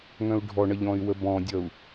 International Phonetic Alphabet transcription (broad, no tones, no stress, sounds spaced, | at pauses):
ŋ œ̃ u̯ ɖʱ ɔ ɳ ʌ ʎ ɔ̃ y̯ w ə b ɔ̃ dʲ ʌ u̯